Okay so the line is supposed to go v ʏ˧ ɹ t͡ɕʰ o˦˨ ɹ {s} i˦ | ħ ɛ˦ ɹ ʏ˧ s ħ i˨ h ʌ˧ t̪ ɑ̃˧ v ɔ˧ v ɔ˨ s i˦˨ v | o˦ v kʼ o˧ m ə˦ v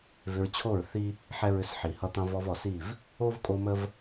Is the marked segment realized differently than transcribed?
yes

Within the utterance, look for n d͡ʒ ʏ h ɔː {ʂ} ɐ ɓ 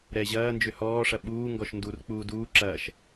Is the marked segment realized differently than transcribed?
no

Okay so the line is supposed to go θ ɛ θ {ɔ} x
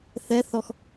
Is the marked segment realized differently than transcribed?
no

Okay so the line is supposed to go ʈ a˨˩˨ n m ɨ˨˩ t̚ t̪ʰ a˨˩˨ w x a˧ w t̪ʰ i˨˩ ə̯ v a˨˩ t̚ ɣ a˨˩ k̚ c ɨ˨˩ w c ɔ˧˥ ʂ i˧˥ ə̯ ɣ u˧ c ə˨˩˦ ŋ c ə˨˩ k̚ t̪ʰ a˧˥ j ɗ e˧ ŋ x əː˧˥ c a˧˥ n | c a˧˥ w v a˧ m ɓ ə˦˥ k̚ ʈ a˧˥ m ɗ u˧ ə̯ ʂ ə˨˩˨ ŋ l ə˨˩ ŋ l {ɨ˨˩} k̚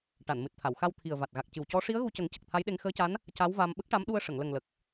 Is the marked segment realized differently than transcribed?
yes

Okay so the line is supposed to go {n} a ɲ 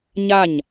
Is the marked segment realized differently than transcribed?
yes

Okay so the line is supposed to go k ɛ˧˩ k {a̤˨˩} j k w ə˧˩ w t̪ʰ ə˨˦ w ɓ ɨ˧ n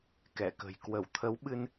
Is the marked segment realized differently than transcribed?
yes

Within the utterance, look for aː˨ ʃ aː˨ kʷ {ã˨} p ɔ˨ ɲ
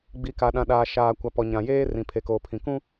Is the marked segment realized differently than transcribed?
yes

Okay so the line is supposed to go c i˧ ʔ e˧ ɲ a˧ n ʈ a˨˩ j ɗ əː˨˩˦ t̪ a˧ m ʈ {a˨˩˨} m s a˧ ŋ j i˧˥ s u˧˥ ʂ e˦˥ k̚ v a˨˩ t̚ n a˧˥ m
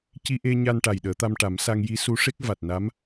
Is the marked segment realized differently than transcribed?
yes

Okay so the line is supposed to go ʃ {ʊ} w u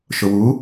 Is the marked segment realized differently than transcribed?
no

